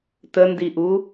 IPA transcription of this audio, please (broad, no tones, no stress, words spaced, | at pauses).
təndiʔu